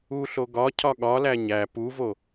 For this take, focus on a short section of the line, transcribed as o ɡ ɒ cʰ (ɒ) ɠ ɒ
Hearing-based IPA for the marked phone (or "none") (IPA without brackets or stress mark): ɒ